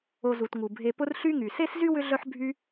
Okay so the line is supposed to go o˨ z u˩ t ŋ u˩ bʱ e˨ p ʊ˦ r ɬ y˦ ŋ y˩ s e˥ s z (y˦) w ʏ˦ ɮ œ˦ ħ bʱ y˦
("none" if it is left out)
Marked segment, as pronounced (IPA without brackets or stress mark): y˥